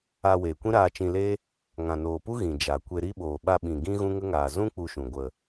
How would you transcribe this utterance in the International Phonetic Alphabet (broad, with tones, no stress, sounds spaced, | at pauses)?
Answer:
aː˧ w eː˨ kʷ ĩ˦ ɾ aː˧ t͡ʃ ĩ˧ l e˦ | ŋ ã˨ n oː˨ p u˦ ɣ ĩ˨ d͡ʒ a˨ kʷ e˧ ɾ i˦ ɓ oː˨ ɓ a˧ ɓ ĩ˨ ɡ ĩ˦ ɣ ũ˦ ŋ ə˦ ŋ aː˨ z ũ˦ k͡p u˦ ʃ ũ˨ ɡʷ ə˨